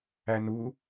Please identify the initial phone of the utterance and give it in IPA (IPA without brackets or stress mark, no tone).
æ